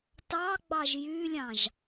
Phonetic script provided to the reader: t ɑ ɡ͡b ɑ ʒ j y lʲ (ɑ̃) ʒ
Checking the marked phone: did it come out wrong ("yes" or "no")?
no